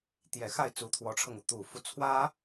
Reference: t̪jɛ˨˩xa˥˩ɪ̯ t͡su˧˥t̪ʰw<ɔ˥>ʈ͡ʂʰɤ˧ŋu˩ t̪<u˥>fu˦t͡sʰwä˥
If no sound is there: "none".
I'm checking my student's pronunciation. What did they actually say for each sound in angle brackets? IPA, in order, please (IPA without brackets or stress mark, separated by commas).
ɔ˧˥, u˨˩